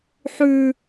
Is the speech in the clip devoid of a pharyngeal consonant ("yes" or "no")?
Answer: no